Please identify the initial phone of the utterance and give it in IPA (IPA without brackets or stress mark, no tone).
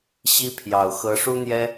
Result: ɕ